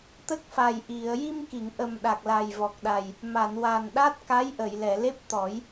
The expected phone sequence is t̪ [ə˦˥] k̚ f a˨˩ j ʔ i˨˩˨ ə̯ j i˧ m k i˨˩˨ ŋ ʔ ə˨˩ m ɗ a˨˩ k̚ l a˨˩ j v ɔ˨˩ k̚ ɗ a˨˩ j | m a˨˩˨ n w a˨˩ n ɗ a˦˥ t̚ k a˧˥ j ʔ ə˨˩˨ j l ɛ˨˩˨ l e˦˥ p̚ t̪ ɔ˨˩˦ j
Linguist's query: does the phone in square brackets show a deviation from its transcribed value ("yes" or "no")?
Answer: no